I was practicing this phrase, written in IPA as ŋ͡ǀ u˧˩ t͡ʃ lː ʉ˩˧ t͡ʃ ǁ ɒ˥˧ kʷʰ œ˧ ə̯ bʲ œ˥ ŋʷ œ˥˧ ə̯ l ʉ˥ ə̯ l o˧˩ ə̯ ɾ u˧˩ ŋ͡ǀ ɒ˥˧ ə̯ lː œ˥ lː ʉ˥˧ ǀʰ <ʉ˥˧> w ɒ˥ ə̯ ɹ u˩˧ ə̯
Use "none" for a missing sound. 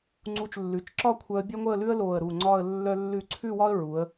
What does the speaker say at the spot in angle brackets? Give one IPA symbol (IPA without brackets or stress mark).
ʉ˥˧